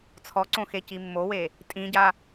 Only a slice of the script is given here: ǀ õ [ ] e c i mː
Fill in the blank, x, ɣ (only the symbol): x